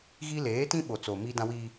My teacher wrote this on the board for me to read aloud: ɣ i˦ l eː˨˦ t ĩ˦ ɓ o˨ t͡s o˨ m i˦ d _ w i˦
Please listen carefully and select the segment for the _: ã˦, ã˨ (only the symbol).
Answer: ã˦